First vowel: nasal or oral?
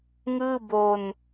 oral